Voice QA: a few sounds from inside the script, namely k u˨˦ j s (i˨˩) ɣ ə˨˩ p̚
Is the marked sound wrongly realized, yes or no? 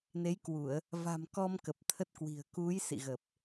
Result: yes